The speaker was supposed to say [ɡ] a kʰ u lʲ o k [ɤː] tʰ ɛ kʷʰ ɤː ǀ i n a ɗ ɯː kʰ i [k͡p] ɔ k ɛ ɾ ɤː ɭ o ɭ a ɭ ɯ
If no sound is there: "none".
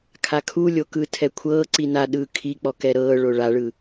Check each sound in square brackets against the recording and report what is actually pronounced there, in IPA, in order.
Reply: kʰ, ɯː, k͡p

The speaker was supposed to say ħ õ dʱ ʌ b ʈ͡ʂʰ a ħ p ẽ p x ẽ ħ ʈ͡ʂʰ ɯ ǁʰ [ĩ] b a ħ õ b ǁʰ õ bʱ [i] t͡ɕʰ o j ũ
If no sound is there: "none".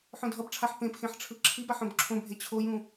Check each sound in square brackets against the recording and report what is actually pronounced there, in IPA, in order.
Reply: i, e

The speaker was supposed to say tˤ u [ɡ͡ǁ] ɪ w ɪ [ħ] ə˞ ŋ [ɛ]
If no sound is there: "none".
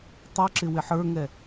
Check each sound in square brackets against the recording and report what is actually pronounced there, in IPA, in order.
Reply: ǁ, ħ, ɛ

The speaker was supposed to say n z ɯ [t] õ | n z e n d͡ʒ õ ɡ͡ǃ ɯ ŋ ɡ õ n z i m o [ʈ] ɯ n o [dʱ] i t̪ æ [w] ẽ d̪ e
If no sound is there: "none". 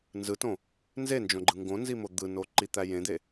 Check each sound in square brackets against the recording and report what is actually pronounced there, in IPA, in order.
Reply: t, d̪, ǃ, j

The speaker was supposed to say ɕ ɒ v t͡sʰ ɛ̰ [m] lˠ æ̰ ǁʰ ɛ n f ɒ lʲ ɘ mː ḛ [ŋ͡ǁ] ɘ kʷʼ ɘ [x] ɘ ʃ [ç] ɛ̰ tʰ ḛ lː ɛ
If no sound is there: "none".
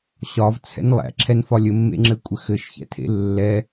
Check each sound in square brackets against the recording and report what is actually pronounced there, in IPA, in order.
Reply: n, ŋ͡ǁ, x, ç

